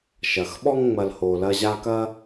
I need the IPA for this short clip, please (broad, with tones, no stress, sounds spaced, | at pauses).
ʃ ɐ˩ x ɓ ɔ˦ ŋ ŋ͡m ɐ˨ l h o˨ l ɐ˦ ʑ a˦ k ɐ˦